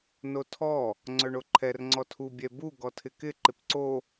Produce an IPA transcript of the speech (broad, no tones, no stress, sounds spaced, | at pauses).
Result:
n o tʰ ɔ | ŋ͡ǀ œ ɳ o ǃʰ ɛ r ŋ͡ǀ ɔ tʰ u bʲ ɛ b u ɡ ɔ tʰ ɪ k ɪ ǃ ɪ p ǀ o